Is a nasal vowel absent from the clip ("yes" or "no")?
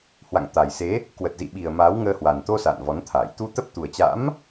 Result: yes